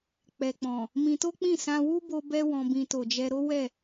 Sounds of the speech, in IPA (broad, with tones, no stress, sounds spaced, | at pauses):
k͡p ɛ˨ k͡p ɔ̃˨ | m ĩ˧ t o˦ k͡p ĩ˦˨ s ã˧ w u˦ b o˧ b ɛ˦ w ɔ̃˧ b ĩ˧ t o˨ d͡ʒ ɛ˧ ɾ o˦ w ɛ˦˨